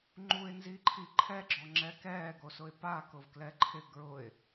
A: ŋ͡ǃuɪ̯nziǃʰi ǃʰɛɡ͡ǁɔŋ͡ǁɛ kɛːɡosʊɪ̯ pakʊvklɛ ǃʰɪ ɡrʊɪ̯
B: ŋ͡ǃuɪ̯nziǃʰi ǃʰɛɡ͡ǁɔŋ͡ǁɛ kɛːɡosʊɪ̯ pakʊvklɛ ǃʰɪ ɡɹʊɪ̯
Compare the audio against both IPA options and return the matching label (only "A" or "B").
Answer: B